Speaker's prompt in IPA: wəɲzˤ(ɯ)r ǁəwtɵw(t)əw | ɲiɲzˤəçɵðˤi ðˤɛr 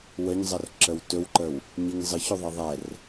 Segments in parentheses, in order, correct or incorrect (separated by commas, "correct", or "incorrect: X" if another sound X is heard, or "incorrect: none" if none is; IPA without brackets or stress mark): incorrect: ə, incorrect: ǃ